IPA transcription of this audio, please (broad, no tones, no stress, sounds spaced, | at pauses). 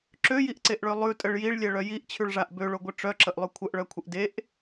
ǁ ø j i ʔ ǀ e ʔ ɭ ø lˠ ʉ tʼ ə ɭ j i ɭ lʲ ɛ ɭ œ j i ʔ t͡ɕʰ ʉ ɭ ʐ a ʔ b ø ɭ o ɡʷ ə ʈ͡ʂ œ ǁ ə ʔ lˠ ʉ kʷʰ ə ʔ ɭ œ kʷʰ ə ʔ d e ʔ